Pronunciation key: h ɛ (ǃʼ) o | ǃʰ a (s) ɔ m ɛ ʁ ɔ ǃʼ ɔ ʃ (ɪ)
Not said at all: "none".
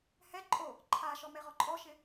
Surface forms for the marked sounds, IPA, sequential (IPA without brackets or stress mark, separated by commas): ǃʼ, ʃ, ɪ